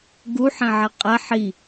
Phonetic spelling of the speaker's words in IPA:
ɡ u ħ ɛ̃ ʕ ɛ qʼ ɛ ħ i

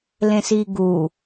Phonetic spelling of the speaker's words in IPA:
l ẽ s i ɡ u

